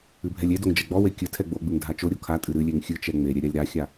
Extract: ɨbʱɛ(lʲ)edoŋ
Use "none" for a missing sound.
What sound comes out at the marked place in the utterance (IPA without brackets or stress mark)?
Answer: lʲ